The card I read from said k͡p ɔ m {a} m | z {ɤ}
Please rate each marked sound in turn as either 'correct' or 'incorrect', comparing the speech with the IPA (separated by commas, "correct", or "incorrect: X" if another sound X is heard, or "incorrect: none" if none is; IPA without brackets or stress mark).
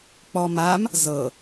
correct, correct